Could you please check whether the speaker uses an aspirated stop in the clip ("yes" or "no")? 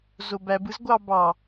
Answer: no